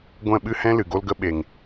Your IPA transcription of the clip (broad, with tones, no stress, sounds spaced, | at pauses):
ɡʷ ɛ̃˦˨ ɓ ɨ˦ h ɛ̃˦ l ɨ˨ ɡ o˦ l ɡ ə˦ ɓ e˨ ŋ